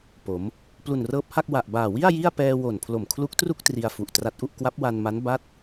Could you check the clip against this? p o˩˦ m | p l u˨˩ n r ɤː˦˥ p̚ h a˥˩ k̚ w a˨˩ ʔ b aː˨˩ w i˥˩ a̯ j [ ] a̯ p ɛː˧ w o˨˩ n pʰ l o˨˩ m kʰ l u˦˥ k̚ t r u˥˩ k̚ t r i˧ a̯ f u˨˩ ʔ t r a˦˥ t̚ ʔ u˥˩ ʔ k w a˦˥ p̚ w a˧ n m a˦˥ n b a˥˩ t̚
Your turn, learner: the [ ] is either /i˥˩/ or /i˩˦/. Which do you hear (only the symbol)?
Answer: i˥˩